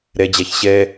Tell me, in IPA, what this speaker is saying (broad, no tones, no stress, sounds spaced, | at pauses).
ɾ ɛ d͡ʑ a ç ɕ ɛ